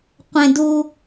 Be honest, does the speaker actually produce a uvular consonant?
yes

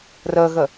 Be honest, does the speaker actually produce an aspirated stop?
no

